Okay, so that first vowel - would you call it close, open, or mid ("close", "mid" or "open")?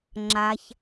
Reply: open